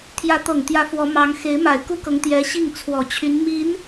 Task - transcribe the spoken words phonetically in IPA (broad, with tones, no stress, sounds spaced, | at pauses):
t̪ʰ j ä˧˥ t̪ ɤ˨˩ ŋ t̪ j ä˧˥ f w ɔ˧˥ m ɑ˧˥ ŋ x e˧˥ ɪ̯ m a˨˩ ɪ̯ k u˥ k ɤ˧˥ ŋ t̪ j ɛ˧˥ ɕ i˥˩ ŋ t͡sʰ w ɔ˨˩ t͡ɕʰ y˧˥ n m i˧˥ n